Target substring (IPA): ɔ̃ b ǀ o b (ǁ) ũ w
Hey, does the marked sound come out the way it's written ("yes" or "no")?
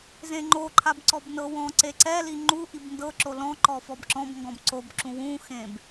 yes